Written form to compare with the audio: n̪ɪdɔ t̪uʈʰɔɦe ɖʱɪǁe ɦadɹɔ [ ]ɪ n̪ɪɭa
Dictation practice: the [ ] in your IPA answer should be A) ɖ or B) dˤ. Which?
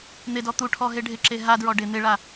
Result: A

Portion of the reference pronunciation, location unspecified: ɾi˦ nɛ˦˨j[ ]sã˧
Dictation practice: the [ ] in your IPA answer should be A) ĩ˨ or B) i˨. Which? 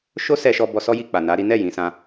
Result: A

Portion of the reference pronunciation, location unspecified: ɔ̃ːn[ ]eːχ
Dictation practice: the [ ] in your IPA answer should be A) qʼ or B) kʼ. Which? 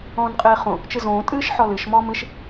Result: A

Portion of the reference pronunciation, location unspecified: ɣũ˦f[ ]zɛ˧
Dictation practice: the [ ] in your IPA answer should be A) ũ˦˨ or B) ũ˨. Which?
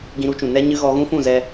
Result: A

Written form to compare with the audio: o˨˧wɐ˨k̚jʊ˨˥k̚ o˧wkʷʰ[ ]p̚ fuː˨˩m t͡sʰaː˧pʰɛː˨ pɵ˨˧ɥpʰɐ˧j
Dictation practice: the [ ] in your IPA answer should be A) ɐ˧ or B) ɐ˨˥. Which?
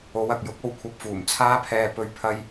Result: A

